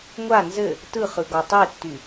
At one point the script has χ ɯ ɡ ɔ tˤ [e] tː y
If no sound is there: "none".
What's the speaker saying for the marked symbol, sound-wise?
e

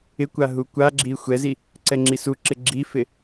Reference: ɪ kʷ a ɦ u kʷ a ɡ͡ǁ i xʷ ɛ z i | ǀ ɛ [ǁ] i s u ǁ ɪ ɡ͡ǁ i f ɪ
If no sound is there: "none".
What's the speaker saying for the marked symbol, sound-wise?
ŋ͡ǁ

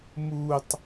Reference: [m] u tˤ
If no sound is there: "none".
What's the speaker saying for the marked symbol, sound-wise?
m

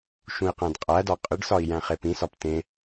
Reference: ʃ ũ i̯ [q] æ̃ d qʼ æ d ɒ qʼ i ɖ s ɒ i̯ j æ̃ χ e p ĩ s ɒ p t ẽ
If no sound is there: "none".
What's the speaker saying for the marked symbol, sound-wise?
q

